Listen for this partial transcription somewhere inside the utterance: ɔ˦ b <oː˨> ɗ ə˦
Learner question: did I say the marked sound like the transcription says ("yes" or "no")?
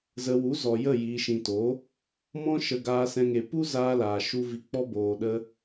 no